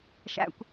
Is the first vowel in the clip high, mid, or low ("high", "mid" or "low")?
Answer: low